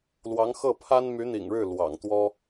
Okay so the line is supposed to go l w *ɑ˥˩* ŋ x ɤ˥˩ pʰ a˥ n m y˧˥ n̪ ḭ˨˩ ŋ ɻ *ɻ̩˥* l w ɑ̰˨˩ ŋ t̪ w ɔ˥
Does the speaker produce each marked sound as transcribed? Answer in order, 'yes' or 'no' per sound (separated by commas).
no, no